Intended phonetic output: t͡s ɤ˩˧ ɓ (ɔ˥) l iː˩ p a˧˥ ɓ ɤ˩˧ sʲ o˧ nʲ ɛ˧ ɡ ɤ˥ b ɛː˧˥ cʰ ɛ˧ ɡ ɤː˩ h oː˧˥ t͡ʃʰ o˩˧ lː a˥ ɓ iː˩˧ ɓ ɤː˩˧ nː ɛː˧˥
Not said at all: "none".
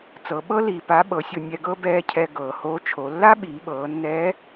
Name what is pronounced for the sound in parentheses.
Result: ɤ˥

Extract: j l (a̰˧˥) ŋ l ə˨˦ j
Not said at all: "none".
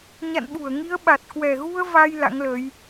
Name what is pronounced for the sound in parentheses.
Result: a̰˧˥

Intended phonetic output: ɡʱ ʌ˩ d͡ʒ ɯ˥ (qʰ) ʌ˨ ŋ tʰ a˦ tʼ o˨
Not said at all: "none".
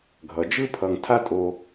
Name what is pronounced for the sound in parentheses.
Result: pʰ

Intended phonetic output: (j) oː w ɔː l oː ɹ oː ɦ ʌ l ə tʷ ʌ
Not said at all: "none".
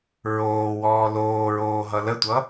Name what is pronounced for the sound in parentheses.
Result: ɹ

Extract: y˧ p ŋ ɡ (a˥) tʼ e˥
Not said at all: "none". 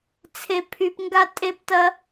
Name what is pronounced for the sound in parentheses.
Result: a˥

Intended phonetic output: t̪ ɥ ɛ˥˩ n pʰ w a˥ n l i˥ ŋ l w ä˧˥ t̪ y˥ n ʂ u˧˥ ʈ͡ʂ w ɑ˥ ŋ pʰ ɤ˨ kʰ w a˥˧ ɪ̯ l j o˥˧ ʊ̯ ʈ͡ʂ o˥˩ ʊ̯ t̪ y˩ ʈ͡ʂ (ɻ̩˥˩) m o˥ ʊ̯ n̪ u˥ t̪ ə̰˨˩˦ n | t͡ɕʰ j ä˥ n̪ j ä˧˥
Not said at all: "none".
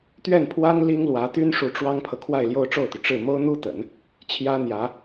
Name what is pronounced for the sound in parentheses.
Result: ɻ̩˥˩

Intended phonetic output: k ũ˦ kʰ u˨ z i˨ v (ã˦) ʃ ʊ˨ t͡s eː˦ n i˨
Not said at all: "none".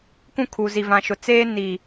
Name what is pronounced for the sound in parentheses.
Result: ã˨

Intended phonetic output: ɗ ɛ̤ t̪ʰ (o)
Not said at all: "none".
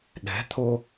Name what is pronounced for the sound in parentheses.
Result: o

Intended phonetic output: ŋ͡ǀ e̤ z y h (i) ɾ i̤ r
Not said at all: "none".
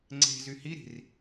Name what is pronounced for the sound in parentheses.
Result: i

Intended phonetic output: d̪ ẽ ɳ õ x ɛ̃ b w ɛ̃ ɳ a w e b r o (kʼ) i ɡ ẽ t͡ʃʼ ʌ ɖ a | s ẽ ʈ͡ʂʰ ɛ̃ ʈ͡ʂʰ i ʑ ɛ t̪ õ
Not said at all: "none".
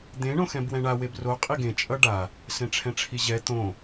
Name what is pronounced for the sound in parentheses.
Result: qʼ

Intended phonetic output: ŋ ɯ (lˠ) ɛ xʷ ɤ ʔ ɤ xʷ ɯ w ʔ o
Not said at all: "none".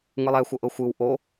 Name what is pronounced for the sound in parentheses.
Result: lˠ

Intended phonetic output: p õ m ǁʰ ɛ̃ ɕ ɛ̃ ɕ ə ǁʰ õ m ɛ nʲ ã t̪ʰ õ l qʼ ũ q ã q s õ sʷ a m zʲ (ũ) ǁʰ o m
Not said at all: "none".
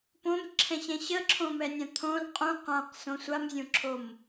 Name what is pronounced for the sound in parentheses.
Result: õ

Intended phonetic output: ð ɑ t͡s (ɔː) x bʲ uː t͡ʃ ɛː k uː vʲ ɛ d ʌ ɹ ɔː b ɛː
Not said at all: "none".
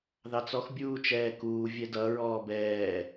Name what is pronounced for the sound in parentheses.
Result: ɔ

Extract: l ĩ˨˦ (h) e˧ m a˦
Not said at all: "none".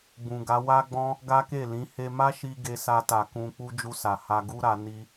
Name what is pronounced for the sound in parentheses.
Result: h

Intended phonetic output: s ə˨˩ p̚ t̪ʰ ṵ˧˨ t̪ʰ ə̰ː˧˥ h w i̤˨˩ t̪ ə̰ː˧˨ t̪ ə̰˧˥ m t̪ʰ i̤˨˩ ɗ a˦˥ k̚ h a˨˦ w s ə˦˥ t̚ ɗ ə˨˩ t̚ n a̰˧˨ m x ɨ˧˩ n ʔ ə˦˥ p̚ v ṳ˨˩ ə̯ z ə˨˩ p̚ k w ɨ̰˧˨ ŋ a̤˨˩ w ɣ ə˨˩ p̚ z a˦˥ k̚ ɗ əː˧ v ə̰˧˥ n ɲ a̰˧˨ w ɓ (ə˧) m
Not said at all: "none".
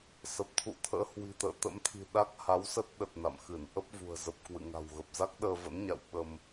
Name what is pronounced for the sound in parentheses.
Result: ə˧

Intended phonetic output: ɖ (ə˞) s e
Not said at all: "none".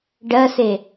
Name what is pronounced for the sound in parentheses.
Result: ɜ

